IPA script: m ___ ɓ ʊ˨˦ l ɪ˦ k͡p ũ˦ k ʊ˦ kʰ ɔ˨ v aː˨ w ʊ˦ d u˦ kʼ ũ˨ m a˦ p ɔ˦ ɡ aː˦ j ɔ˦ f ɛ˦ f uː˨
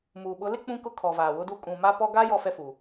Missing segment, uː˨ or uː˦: uː˨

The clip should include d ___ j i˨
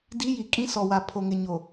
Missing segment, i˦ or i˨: i˦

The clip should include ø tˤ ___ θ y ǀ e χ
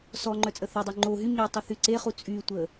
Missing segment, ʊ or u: u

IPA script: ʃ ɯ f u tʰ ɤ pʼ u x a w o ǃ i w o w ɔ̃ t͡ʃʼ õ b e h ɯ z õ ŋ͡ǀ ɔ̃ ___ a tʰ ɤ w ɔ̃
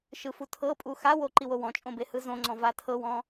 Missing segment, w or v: v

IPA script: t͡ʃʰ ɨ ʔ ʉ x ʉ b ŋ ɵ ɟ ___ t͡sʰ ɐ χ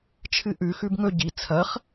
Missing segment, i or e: i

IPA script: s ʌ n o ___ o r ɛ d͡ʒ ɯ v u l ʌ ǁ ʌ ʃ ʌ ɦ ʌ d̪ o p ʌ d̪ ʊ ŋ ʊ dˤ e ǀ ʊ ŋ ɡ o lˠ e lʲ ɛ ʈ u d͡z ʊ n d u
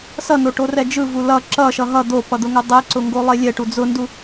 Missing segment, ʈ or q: ʈ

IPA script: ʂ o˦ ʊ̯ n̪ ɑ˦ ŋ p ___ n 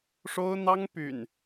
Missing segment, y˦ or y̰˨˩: y̰˨˩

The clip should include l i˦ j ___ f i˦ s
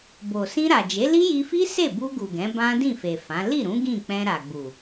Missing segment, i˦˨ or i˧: i˧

